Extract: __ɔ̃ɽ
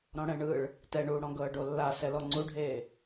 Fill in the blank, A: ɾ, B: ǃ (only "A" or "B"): A